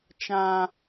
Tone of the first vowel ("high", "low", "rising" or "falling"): high